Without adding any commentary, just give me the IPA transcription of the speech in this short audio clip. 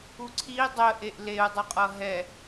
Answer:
u ǀʰ i dˤ ə ʔ e ʔ l e u̯ dˤ u qʼ ʌ ɦ ɛ

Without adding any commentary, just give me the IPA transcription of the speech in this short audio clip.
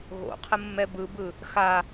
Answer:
ɣ o̰ qʰ ə mː ɛ b ɯ b ɯ | x a

